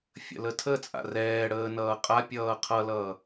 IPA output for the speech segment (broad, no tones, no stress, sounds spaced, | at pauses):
fʲ ə̰ l ə tʰ ə t͡sʼ a̰ r ɛː ɽ əː n ʌː qʼ a pʲ ʌː qʰ ʌ l ʌː